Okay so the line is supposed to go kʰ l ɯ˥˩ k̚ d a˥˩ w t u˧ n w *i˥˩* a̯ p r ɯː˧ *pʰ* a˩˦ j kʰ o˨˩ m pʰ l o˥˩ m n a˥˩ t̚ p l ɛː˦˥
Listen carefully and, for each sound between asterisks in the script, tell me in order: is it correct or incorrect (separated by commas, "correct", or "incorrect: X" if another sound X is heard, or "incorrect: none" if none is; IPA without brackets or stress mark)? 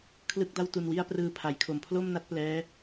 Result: correct, correct